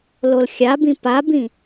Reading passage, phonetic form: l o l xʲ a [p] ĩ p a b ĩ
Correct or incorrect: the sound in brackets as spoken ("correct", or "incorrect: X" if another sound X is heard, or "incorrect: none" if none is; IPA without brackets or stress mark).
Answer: incorrect: b